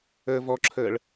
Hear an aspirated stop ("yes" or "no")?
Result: yes